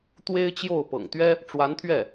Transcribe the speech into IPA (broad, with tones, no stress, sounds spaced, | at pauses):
t̪ w e˥ ɪ̯ t͡ɕ j o˥˩ ʊ̯ p ɤ̰˨˩ ŋ t̪ ɥ ɛ˥ | ʈ͡ʂ w a˧˥ n t̪ʰ ɥ ɛ˥˩